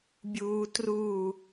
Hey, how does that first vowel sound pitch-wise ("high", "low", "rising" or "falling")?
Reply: low